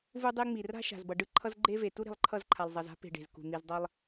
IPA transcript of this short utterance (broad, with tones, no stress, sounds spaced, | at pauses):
v u˦ dˤ e˦ ŋ͡m i˨ r a̤˦ ʃ a̤˨ z b ʌ˨ ɖ ɯ˦ ǃʰ ʌ˦ z ɡ͡ǃ e˦ v e˨ t u˦ ɾ e̤˨ lˠ ǃʰ ʌ˦˨ z ǃʰ a˨ lˠ zˤ ʌ˨ z a̤˦ p e̤˨ ɖ e̤˨ z k ṳ˨ n̪ i˨ z dˤ ʌ˦ lˠ